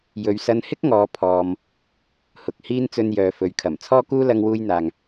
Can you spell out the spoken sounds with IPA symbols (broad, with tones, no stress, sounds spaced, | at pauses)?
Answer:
j ɵ˨ ɥ s ɐ˧ n h ɪ˥ k̚ ŋ ɔː˨˧ pʰ ɔː˧ m | h ʊ˨ k̚ h iː˥ n t͡s ɵ˧ n j œː˨ f ɵ˨ ɥ kʰ ɐ˨˩ m t͡sʰ ɔː˥ k uː˥ l ɐ˧ ŋ w uː˧ j n̪ aː˨ ŋ